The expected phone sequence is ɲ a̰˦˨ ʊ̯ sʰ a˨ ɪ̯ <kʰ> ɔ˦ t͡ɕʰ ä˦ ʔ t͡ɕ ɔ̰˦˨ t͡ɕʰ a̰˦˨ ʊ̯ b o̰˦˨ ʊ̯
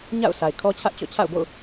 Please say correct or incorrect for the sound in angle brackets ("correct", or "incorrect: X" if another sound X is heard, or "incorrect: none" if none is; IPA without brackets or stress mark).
correct